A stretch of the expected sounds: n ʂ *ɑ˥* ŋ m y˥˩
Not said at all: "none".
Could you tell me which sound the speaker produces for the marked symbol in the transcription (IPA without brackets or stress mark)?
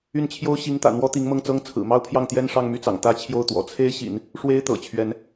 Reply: ɑ˥˧